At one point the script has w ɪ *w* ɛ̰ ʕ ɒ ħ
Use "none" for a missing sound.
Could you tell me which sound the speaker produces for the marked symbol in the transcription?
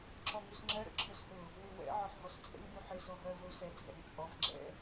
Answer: w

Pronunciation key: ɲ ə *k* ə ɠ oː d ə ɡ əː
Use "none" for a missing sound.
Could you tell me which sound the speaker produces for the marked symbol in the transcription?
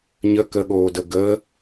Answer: k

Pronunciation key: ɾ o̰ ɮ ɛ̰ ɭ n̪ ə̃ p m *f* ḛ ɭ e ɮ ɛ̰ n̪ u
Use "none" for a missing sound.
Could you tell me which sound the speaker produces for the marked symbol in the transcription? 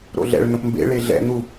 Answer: b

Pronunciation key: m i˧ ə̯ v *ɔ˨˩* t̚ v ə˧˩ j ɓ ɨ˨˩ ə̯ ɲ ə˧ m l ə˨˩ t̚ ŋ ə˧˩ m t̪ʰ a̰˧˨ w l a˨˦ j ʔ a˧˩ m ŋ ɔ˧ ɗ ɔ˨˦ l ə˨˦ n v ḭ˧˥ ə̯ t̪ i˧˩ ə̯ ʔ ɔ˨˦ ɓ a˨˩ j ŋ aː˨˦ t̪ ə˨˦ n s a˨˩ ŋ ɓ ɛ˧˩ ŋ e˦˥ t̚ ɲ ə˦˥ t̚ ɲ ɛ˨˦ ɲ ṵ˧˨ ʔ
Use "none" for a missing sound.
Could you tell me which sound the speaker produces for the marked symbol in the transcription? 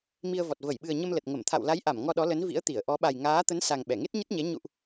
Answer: ɔ˨˩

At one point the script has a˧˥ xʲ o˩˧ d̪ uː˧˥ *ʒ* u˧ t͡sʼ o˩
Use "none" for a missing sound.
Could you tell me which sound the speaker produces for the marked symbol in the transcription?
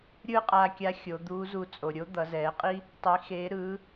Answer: z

